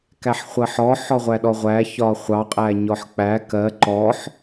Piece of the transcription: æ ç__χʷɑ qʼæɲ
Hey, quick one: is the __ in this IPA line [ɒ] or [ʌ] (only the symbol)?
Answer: ɒ